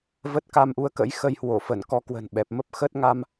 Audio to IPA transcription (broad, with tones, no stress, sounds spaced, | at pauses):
v ə˦˥ t̚ k a˧ m ʔ u˨˦ ə̯ k ə̰˧˥ j x ə˧ j h w o˧˩ f ə˧˩ n k ɔ˧ k w ə̤˨˩ n ɓ ɛ˨˩ p̚ m ə˦˥ p̚ x əː˦˥ t̚ ŋ a˧ m